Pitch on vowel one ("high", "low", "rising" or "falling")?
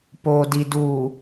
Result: low